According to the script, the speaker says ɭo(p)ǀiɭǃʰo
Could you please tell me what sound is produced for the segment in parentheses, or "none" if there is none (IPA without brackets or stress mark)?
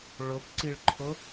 p